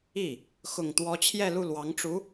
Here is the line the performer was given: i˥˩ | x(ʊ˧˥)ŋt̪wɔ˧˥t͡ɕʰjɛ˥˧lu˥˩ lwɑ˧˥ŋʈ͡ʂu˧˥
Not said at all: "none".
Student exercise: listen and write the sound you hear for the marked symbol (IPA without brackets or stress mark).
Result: ʊ˨˩